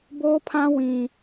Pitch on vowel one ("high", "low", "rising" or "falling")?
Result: high